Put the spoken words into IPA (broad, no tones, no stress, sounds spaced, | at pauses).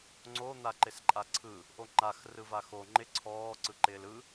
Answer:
ŋ͡ǀ o n̪ a ǃ ɪ s ǃʼ a ǀʰ ɯ | ʔ o ŋ͡ǃ a x r ɯ v a x o ŋ͡ǃ ɪ ǀʰ ɔː ǀ ɯ ǃ ɪː l ɯ